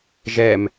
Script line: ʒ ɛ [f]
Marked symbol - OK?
no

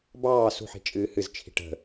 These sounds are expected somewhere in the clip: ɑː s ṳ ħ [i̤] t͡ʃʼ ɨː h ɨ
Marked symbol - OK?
yes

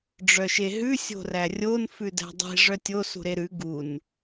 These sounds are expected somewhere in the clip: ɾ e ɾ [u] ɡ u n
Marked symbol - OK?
no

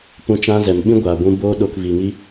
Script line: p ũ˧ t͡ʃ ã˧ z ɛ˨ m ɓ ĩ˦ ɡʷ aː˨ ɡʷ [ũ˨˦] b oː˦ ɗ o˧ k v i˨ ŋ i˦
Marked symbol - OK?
no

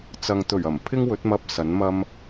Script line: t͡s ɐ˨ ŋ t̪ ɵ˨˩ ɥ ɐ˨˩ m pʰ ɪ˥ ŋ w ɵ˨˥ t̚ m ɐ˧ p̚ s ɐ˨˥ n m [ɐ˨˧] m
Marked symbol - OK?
no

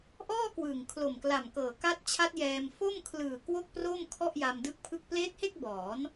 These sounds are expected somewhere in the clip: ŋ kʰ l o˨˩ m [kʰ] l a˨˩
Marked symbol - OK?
no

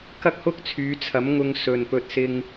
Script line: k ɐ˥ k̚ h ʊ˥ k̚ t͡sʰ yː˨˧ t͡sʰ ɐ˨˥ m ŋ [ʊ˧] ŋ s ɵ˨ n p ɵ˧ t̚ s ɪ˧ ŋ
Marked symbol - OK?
yes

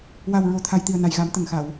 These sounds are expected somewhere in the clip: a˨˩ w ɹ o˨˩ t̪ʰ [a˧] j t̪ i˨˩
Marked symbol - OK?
no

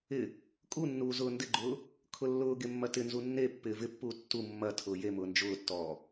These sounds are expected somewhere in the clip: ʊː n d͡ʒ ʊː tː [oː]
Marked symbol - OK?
no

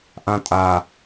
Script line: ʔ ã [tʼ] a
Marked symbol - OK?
yes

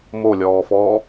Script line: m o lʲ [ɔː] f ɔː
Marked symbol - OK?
yes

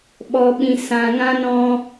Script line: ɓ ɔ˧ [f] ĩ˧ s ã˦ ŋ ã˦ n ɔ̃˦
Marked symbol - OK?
no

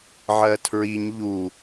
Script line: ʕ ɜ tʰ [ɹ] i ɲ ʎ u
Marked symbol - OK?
yes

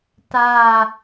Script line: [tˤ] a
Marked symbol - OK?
no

